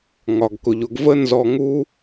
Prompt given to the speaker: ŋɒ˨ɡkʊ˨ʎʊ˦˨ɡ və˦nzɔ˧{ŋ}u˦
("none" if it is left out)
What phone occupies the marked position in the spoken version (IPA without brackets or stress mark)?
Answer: ŋ